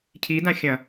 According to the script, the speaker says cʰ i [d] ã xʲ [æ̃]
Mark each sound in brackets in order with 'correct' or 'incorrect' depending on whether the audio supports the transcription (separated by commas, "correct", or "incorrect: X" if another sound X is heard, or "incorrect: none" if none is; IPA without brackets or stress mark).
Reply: correct, incorrect: ɐ̃